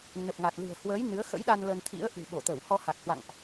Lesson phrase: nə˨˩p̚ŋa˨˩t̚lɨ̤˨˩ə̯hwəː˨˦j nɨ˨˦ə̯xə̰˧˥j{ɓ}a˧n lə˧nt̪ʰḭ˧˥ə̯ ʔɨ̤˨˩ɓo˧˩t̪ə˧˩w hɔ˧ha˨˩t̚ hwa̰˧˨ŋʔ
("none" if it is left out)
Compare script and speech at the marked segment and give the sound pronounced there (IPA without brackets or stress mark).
ɗ